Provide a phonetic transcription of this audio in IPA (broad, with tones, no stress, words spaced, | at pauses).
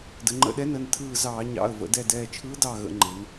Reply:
də˩˧ŋ͡ǃə̰˧˩ɗɛ˧˥nə˩˧˩n tʰɯː˧˩zɑː˧˩˧ɲɑ̰˩˧˩ə̯ və̰˩˧dɛ˧˩dɛː˧˩ t͡ʃʰɯː˧˥dɑ˧˩ɣə̰˧˩˧ŋ͡ǃe˩˧n